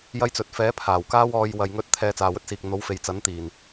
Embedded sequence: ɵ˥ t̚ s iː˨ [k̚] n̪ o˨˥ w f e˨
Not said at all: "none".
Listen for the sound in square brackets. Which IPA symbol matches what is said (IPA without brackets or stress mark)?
k̚